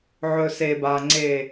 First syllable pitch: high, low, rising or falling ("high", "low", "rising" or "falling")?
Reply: low